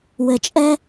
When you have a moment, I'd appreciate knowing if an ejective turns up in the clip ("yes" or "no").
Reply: yes